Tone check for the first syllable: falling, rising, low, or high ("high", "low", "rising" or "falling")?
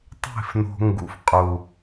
falling